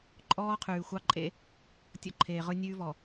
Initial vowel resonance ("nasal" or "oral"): oral